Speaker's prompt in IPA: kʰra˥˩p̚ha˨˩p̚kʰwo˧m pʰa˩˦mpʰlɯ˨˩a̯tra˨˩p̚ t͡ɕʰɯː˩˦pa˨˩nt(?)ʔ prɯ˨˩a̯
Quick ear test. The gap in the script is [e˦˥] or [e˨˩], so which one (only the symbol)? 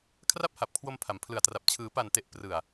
e˨˩